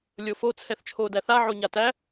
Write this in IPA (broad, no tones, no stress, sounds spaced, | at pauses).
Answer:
lʲ o f o t͡sʰ ɛ θ t͡ʃʰ o d æ θ a ʕ o ɲ a t æ